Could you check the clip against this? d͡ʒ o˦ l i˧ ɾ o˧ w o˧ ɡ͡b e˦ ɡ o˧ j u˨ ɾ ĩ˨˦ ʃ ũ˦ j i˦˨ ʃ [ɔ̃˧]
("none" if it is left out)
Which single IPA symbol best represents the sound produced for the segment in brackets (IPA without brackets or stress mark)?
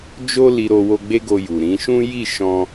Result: ɔ̃˧